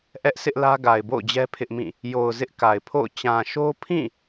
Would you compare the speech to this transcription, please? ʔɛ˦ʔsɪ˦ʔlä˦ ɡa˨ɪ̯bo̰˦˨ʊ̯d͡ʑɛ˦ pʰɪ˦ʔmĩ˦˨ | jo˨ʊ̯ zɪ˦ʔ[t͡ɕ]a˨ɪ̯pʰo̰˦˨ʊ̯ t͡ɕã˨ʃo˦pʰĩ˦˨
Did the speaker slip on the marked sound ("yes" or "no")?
yes